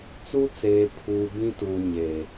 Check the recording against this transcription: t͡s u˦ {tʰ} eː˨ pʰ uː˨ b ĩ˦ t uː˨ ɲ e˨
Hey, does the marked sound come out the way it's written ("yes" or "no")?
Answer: no